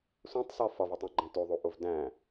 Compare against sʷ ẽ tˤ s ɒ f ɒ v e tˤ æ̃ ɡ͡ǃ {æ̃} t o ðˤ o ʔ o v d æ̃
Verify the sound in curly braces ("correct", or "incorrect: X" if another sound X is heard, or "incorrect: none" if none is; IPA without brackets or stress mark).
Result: correct